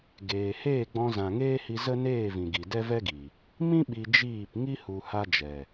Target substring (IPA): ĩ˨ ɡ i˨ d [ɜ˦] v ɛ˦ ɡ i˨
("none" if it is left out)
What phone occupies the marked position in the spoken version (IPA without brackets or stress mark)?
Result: ɛ˦